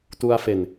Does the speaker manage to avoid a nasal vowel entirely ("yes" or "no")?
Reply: yes